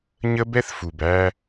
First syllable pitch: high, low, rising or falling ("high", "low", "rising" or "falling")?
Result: high